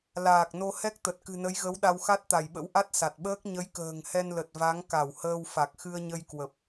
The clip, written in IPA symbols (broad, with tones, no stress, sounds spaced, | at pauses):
l aː˨˩ k̚ n o˧ h ɛ˦˥ k̚ t̪ ə˨˩ t̚ k ɨ̤˨˩ n ə˨˦ j ɣ ə˨˦ w ɗ a˧ w x a˦˥ t̚ t̪ a˧˩ j ɓ ə̰˧˥ w ʔ a˦˥ t̚ s a˨˩ t̚ ɓ əː˦˥ k̚ ɲ ə˨˦ j k ə̤ː˨˩ ŋ h ɛ˧ n l ə˨˩ t̚ v a˨˦ ŋ k a˧˩ w h əː˧ w f a˨˩ k̚ x ɨ˧ ə̯ ɲ ə˧ j k w ə˨˩ p̚